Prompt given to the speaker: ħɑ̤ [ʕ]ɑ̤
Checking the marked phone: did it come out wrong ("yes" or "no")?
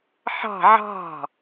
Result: no